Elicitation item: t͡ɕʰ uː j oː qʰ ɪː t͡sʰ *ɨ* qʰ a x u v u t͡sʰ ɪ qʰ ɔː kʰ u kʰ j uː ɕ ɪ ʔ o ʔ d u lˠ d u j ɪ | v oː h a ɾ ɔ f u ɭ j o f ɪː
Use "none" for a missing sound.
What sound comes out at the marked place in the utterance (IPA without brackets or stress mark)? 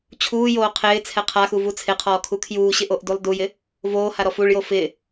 ɛ